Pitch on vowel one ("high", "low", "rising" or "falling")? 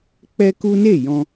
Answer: high